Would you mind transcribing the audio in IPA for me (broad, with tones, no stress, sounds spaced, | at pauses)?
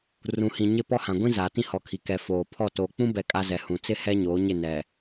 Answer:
r ũ˨ h ĩ˨ ɲ ɪ˦˨ p ɔ˦ h ã˨ ɡʷ ĩ˦ z aː˨ t ĩ˦˨ h ɔ˨˦ kʰ i˨ k ɛ˨ f oː˨ pʰ ɔ˦˨ t oː˨ k͡p ũ˦ b ɛ˦˨ kʼ a˦ z ɛ˨ h ũ˨ t͡s ɪ˦ h ɛ˦ ɲ oː˨˦ ɲ ɪ˦˨ n ɛ˨